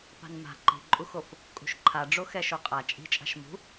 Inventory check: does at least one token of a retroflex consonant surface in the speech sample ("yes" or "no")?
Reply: yes